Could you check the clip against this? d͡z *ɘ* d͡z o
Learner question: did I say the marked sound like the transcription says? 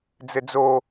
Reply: yes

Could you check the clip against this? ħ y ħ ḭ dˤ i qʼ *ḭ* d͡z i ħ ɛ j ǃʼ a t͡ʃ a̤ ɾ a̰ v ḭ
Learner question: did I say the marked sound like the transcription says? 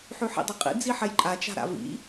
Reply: yes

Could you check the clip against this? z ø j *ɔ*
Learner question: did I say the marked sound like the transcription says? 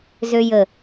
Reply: no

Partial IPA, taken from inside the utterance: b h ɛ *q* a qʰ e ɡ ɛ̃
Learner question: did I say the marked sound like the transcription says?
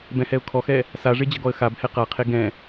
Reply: yes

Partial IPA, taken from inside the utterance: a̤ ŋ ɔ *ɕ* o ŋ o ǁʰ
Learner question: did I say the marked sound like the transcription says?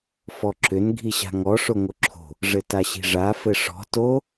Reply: no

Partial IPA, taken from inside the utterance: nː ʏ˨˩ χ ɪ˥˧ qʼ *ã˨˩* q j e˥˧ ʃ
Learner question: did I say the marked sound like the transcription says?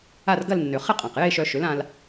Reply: yes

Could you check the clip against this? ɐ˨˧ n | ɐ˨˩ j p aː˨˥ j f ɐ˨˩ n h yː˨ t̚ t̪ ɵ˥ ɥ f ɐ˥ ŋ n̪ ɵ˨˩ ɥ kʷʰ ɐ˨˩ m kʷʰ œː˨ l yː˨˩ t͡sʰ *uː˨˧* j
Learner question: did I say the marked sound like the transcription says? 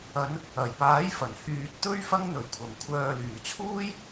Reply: no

